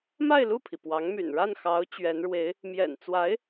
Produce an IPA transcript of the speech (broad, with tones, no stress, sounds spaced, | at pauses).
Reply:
m a˥˧ ɪ̯ l u˥˩ pʰ i˩ p w ɑ˧˥ ŋ m y̰˨˩ n ɻ a˥˩ n x ɑ˧˥ ʊ̯ t͡ɕ ɥ ɛ˧˥ n ɻ w e˧˥ ɪ̯ | m j ɛ̰˨˩ n t͡s w a˧˥ ɪ̯